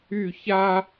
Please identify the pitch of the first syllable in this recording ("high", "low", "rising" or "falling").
falling